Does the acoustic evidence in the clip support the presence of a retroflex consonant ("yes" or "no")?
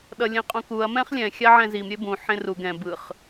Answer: no